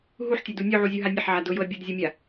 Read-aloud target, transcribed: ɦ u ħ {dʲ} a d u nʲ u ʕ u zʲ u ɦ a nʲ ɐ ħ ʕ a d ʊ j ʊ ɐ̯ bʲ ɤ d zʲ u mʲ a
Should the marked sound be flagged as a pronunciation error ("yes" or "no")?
yes